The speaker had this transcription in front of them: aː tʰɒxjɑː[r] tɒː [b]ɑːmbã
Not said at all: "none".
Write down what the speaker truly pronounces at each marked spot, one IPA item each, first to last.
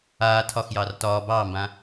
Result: r, b

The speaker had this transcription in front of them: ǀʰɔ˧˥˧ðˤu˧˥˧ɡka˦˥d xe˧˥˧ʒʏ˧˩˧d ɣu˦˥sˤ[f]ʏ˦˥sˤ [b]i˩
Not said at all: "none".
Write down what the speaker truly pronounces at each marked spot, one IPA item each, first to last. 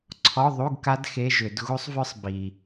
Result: v, b

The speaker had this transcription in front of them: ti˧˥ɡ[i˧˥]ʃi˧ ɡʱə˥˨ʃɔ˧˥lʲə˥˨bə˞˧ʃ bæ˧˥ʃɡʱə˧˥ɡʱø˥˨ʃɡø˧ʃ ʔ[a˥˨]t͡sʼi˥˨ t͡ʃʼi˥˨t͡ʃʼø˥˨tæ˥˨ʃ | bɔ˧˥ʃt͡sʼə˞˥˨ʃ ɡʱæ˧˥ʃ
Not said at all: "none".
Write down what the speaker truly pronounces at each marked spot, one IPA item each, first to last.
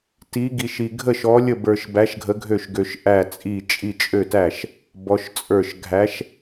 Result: i˧, æ˥˨

